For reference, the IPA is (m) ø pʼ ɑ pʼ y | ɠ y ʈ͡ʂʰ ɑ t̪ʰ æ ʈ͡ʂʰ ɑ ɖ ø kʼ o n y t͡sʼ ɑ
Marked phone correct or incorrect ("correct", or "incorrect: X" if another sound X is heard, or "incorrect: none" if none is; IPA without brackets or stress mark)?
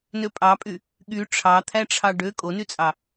incorrect: n